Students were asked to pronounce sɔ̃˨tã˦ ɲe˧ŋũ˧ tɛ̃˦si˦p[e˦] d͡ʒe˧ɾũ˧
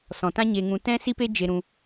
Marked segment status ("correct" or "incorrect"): correct